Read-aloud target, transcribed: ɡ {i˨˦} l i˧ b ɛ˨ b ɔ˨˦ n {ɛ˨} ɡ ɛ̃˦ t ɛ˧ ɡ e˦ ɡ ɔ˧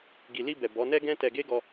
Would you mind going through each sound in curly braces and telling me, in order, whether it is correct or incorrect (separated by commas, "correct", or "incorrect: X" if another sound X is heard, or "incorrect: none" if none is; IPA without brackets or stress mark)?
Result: incorrect: i˨, incorrect: ɛ˦